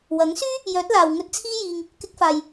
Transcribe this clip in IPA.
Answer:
wɐ˨˥ŋsyː˥ | jœː˨˥t̚laː˨wŋɵ˧t̚ t͡sʰiː˥jiː˧ŋ | kɪ˧k̚faː˨j

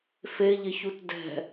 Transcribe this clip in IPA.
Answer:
feʎeçut dɛ̤

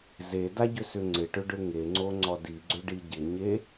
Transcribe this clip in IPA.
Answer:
zedaɟʏsʏ ŋ͡ǀɪʈʏɖʏ ŋeŋ͡ǀoŋ͡ǀɔ diɡ͡ǀʏɖi ɟɪɲe

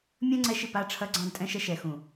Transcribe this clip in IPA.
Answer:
mʲɐ̃˦ŋ͡ǀɛ˧ʃi˨pa˦˨ ʈ͡ʂʰɐ˧ɡ͡ǀɑ̃˧dtʼɛ̃˧ʃ ɛ˧ʃɛ˨xũ˨

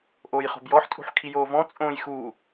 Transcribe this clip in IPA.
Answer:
ʔoːjχo̤bjɔħ tʼṳħkʰijoːvɔ̃ t͡sʼõːjxu

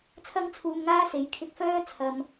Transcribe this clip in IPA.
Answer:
t͡sʰɐ˥ŋt͡sʰuː˧mŋaː˥ se˨˥jkʰɪ˧k̚fœː˥ t͡sʰɐ˧m

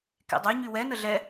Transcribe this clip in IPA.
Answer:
kḛdˤeɲy wɛnə ɮɛ

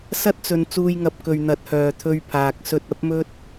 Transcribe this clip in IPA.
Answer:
sɐ˥t̚t͡sɵ˨n t͡suː˧jŋɐ˧p̚kɵ˨ɥ n̪ɐ˨˥t̚hœː˨t̪ʰɵ˧ɥpʰaː˨k̚ sɵ˧t̚ɐ˥p̚mɵ˥t̚

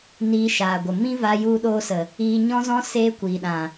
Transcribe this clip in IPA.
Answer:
niː˧ ʃaː˨ɡʷə˨mĩ˦va˧ ju˧ɗoː˧sə˨ | iː˧ɲɔ̃˦zɔ̃˦ seː˧kʷiː˨ɗã˨

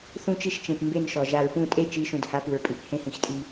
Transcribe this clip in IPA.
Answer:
θũ˦t͡ʃi˦˨ʃt͡ʃẽ˨p mbe˦˨nʃɔ˨ ʒa˨ɹpũ˦˨tʼe˦t͡ʃi˨˦ ʃũ˨dha˦ pu˨ɹpʼi˨p hẽ˦hĩ˨xtʼi˦

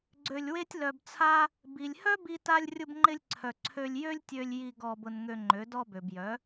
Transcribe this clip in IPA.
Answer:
ɡ͡ǀø˧lʲwe˦tʲlœ˧bt͡sʰa˦ | bi˨lʲhœ˦bi˧ta˧lʲ rʲʊ˧bŋ͡ǃɪ˧lʲǀʰœ˨ ǀʰø˧lʲjø˦lʲtʲø˧lʲ ji˧ɡɔ˧b ʊ˧nŋø˧ ŋ͡ǃø˨˦ dɔ˧bø˨bjœ˨˦

